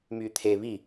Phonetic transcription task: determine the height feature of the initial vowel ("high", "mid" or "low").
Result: high